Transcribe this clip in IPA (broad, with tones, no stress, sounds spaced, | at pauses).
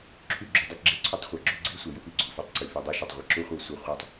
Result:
ǁʰ y˦˨ ɡ͡ǁ u˨˦ dˤ ʊ˦ ɡ ɡ͡ǁ e˦ ǀʰ y˦ tˤ χʷ æ˨ ɡ͡ǁ u˦ ɡ͡ǀ i˦ sʷ ɛ˨ j ʊ˦ p i˨ ɡ͡ǀ u˨ f e˦ tˤ ǀ y˨ f y˨ dˤ u˦ ʃ y˨ tˤ ʁʷ ɛ˨ ǁ u˦ χʷ ɤ˦˨ sʷ ɛ˦ χʷ ɛ˦ tˤ